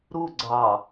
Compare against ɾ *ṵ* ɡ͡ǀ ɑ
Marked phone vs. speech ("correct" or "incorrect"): incorrect